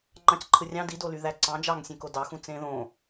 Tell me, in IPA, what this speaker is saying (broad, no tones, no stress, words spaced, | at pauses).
ŋ͡ǃɑ̃cǃʰɯrʲɑ̃ dido lyðæǀɑ̃ d͡ʒɑŋsʲẽko dɑxũ t͡sẽðõ